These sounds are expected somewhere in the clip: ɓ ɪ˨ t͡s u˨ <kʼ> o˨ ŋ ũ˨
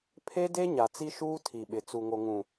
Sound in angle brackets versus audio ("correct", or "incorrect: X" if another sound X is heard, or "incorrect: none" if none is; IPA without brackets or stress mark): incorrect: ŋ